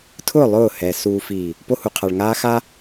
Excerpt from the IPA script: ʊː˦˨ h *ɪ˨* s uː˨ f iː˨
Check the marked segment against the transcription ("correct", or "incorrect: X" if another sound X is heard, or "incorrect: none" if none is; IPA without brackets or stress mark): incorrect: ɛ˨